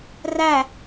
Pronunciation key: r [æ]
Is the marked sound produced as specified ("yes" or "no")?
yes